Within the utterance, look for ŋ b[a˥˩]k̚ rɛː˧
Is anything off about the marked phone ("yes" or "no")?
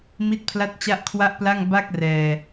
no